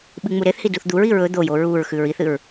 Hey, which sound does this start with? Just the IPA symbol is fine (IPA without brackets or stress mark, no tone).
ɓ